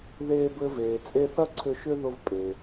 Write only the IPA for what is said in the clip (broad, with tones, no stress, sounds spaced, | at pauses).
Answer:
ð eː˧ b ɘ˧ v eː˩ t͡sʼ e˧ θ ɐ˥ ǀʰ ʏ˧ ʃ ʏ˥ ð ʊ˧ v pʼ eː˩